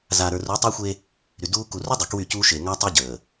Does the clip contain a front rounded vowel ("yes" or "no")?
yes